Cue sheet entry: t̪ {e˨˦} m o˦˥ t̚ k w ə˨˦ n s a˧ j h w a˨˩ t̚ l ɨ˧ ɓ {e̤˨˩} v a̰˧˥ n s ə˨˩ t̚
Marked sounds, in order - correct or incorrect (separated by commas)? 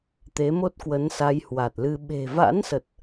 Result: correct, correct